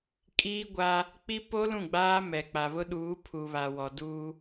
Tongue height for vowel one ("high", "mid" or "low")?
high